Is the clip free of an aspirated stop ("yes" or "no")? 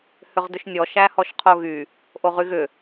no